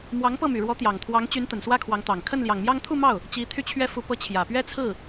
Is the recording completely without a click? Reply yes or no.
yes